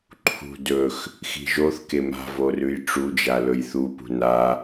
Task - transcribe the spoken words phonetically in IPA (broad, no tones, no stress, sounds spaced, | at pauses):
ǃʰ ṳ d ɵ x | x i̤ ʒ o θ k e m a̤ v o r ʉ j ʈ͡ʂ u d͡ʒ a l ɵ j θ u p ṳ n a